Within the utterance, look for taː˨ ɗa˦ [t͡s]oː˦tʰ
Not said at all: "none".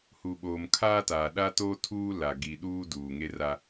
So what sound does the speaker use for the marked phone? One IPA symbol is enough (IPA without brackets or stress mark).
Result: t